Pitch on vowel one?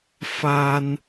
high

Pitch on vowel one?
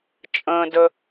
low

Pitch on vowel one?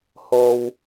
low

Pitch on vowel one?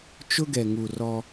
high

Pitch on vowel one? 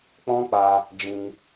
high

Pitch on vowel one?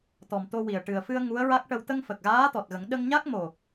low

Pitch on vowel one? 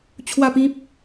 falling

